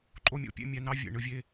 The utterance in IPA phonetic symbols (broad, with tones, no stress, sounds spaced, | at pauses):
ǃʼ o˦ mʲ o̰˦ pʲ ḛ˦ mʲ æ˧ n ɑ˦ vʲ ḛ˨ ɳ ɯ˧ vʲ e˧